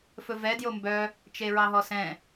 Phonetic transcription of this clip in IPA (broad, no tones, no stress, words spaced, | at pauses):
fɵvɛ djombœ | t͡ʃeɹɑɦɔsɛ̃